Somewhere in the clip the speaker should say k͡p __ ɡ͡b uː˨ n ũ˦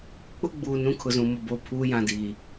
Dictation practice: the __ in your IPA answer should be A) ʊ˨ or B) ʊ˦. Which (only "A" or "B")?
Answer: B